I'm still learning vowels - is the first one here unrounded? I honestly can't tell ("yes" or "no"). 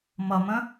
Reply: yes